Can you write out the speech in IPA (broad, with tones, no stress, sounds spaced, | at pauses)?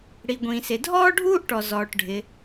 ɽ i˩ ɡʷ ĩː˩ s ɪ˩ dʱ ɔː˥ ɖʱ uː˥ ʔ ʈ ɔ˩ z ɔː˩ ʈ ɖʱ ɪ˩